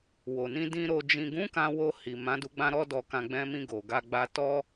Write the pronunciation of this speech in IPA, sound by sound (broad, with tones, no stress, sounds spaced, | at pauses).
w o˨ n ĩ˧ d ĩ˧ ɾ o˨ d͡ʒ ĩ˨ ɡ ũ˨˦ k ã˧ w o˧ h i˨ m ã˨˦ d u˧ ɡ͡b ã˦ ɾ ɔ˦ d ɔ˧ k ã˧ ɡ͡b ɛ̃˧ m ĩ˧ ɡ o˨ ɡ a˧ ɡ͡b a˧ t ɔ˦